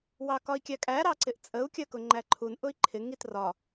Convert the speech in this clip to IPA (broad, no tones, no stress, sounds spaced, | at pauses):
w ɑ k ɒ i̯ kʲ æ kʼ æ ɾ ɑ ǀ ɪ ʔ t͡sʼ ə u̯ kʲ ɜ k ʊ ŋ͡ǃ æ ǃʰ u n ʔ ʊ i̯ ǃʰ ɪ ŋ i t r ɒ